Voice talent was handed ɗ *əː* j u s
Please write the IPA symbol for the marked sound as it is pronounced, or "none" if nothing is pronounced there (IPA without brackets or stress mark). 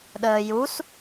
əː